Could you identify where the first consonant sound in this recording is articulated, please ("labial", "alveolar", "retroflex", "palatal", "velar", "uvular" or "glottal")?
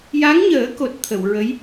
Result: palatal